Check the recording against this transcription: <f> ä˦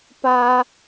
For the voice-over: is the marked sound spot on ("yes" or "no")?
no